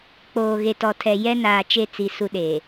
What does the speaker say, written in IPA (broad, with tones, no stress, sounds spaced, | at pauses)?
k͡p oː˨ ɣ e˨ t ɔ˨ tʰ ɛ˨ j ɛ˦ n aː˨ t͡ʃ e˦˨ t͡s i˨ s u˦ ɗ e˨